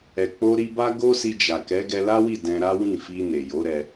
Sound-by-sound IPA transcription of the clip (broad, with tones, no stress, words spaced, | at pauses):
ɛ˨k͡po˧ɾi˧ba˦ ɡo˦si˧d͡ʒa˨ kɛ˨˦ɡɛ˧la˦wi˦˨ dɛ̃˧ɾa˦ wĩ˦˨fi˧ne˨ jo˨˦ɾɛ˧